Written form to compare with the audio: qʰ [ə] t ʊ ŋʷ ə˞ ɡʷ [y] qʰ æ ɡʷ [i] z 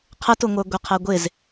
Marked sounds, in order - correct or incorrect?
correct, incorrect: ɪ, incorrect: ɪ

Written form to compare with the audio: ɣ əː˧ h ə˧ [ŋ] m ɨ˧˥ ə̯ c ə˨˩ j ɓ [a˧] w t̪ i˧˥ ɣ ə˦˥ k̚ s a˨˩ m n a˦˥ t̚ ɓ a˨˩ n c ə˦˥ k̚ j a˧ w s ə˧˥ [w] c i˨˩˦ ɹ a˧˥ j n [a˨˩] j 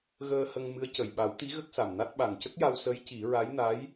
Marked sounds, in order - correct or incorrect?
correct, incorrect: a˨˩˦, incorrect: j, incorrect: a˧˥

